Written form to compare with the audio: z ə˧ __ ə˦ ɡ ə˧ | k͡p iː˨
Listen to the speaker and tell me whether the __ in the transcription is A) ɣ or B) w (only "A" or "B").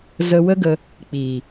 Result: B